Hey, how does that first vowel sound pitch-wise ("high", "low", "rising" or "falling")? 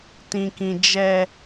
low